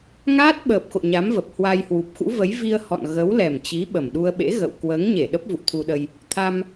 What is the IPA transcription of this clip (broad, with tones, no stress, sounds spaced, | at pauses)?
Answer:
ŋ aː˦˥ t̚ ɓ əː˨˩ p̚ x o̰˧˨ ɲ a˨˦ m v ə˨˩ p̚ h w a˧ j h w u˨˩ p̚ x ṵ˧˥ v ə˨˦ j v i˧ ə̯ h ɔ̰˧˨ n ɣ ə˨˦ w l ɛ˨˩ m t͡ɕ i˨˦ ɓ ə˨˩ m ɗ u˧ ə̯ ɓ ḛ˧˥ ɣ ə̰˧˨ w k w əː˨˦ ŋ ɲ e˧˩ ɗ ə˦˥ p̚ v ṵ˧˨ t̪ʰ u˧ ɗ ə˧ j | t̪ʰ a˧ m